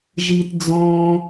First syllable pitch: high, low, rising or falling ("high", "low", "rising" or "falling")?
low